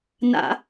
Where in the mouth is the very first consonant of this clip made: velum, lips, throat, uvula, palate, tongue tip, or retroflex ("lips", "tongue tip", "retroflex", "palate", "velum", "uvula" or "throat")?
tongue tip